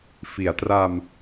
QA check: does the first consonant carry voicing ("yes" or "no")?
no